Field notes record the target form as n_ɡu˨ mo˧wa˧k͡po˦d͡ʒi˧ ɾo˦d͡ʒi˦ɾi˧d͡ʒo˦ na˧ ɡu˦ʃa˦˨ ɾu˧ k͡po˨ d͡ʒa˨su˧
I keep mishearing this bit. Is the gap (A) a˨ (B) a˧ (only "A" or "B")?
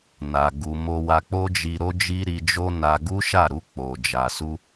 A